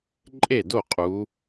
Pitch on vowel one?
falling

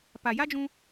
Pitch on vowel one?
low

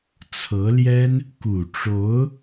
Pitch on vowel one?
rising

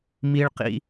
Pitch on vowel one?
high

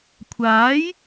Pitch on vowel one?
rising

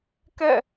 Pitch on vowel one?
falling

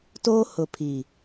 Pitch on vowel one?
high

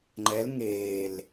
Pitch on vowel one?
rising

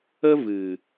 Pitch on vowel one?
high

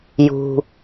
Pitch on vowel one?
low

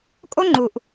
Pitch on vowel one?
high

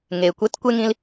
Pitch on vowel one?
low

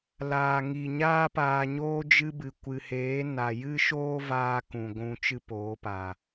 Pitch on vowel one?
low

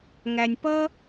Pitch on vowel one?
low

